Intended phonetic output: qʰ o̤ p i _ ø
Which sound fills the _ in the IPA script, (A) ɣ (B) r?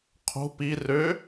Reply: B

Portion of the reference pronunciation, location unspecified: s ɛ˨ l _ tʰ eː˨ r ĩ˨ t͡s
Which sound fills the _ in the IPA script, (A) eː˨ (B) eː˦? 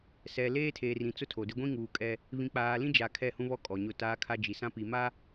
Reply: B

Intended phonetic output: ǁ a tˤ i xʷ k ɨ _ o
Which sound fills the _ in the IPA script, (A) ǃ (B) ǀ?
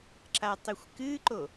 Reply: A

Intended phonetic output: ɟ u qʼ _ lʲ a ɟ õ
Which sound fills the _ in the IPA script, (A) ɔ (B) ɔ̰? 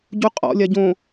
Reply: B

